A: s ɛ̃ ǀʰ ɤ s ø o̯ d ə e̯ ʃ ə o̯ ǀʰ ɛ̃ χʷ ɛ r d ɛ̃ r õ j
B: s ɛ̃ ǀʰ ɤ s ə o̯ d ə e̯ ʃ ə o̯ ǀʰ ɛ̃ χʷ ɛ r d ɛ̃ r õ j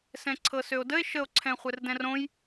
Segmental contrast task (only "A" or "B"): A